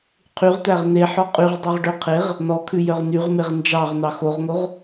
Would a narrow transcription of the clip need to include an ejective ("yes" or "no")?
yes